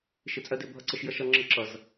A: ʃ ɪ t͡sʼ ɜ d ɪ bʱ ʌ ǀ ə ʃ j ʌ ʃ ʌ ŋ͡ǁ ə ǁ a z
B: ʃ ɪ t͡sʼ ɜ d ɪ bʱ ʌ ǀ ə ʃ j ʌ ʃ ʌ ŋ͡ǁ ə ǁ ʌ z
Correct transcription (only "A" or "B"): B